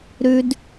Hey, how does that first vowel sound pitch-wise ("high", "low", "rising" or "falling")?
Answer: high